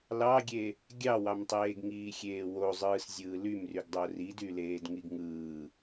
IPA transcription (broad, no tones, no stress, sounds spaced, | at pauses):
l ɑ ɡʲ e | ɡʲ ɑ w ɑ m tˤ eː ɡ ŋ iː xʲ eː w o zˤ ɯː s zʲ ɯː l y m r y ɡ dˤ o r i d y l eː d ŋ i ɡ ŋ ɯː